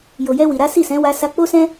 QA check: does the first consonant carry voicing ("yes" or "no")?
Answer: yes